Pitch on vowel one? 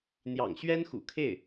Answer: low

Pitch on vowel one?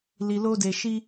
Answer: low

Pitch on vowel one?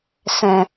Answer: low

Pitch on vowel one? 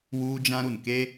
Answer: high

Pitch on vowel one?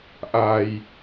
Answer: low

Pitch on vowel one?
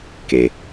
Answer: low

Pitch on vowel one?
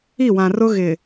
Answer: falling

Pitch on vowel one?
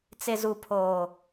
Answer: low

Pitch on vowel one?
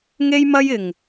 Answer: high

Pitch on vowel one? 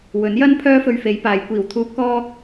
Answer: rising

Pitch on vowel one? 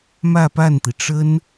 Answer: falling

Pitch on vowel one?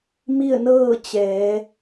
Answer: falling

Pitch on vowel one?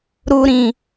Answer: high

